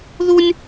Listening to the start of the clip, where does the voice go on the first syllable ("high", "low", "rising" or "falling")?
high